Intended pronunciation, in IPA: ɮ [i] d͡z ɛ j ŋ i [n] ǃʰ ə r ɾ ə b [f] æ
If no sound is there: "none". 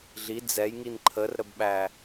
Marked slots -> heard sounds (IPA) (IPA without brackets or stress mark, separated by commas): i, n, ɓ